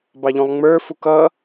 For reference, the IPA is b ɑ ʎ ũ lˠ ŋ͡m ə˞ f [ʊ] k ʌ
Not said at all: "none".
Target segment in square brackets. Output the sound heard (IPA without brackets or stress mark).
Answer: u